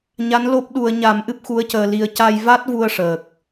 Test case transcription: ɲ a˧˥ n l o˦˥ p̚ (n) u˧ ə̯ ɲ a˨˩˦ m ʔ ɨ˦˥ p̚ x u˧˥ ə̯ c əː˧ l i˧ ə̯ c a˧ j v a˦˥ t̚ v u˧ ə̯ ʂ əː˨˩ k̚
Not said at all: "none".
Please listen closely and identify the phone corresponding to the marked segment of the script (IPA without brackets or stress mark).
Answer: ɗ